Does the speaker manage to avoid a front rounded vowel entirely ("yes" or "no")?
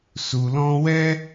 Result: yes